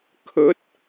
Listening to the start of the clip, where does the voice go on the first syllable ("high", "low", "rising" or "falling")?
rising